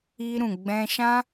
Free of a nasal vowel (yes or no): no